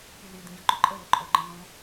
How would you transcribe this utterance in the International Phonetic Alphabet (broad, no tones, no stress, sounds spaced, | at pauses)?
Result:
pʲ ə l i d̪ ĩ ɟ ɔ̃ ǃ ʊ ǃʼ ə l ʊ ǃʼ ɔ ɡ͡ǃ ə̃ n ɔ̃